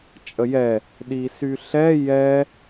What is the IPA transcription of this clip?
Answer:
t͡ʃʼ ə j ɛ | ɗ i s y ɬ ɛ j ɛ

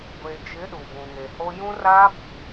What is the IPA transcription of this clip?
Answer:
ɡʷ e˨ d͡ʒ ɪ˨˦ ɗ u˨ b ũ˨ ŋ e˨ h o˦ j ũ˦ r aː˦ b i˨

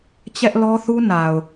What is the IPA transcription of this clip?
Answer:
t͡ɕ ɛ˦ ʔ l ɔ˦ θ u˦ n a˨ ʊ̯

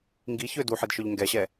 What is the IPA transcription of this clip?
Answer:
ŋ ɡ i ç ø d u ħ i d ʃ œ ʎ ŋ ɡ ɛ ɕ ɛ

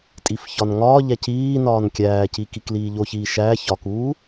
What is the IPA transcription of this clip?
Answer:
tʼ i f ç ɒ n ŋ ɒː ʎ æ c iː n ɒː n kʲ æː c i k i k l iː ʎ o ç iː ʃ æ ç ɒ k uː

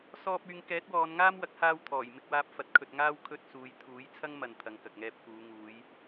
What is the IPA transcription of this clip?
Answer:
s ɔː˧ p̚ yː˨˧ ŋ k ɛː˨˥ t̚ w ɔː˨˧ n ŋ aː˥ m w ɐ˨˥ k̚ h aː˧ w t̪ʰ ɔː˨˩ j m ɪ˧ k̚ w aː˧ p̚ f ɐ˨ t̚ kʰ ɵ˨ t̚ ŋ aː˧ w kʰ ɵ˧ t̚ s uː˨˧ j t̪ʰ uː˨˥ j t͡sʰ ɐ˥ ŋ m ɐ˨ n t̪ʰ ɐ˨˧ ŋ k ɐ˨ k̚ ŋ ɛː˧ p̚ f uː˨˧ ŋ uː˨˧ j

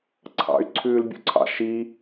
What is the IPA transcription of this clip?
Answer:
ǀʰ ɑ̰ y̯ ǀʰ ʉː l bʲ ṵ ǀʰ ɑ̰ ʃ i

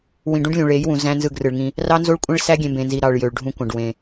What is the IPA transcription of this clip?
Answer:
w ĩ˨ ɖ ũ˦ ɖ lʲ ũ˨ ɭ e˨˦ j w ũ˨ z æ̃˦ n z ɯ˦˨ ɡ r ɯ˨ ɭ ŋ ĩ˦ | r ɑ˦ n z o˦ ɭ kʷʼ ẽ˦ ɭ s æ˦ ɡʲ ẽ˨ m b ẽ˨ n z i˨ ɾ ɑ˨ ɭ j ø˨ ɭ ɖʱ ũ˦ kʷ ɑ̃˨ ɖ w ẽ˨

